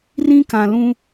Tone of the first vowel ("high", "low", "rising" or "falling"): high